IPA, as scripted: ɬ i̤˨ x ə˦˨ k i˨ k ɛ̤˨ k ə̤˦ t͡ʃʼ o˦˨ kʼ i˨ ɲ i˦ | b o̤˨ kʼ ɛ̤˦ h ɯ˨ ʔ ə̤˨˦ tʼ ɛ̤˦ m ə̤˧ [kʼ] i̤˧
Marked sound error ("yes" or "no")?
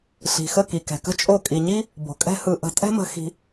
yes